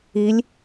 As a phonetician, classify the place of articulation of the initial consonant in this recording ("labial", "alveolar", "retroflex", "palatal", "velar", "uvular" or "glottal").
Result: alveolar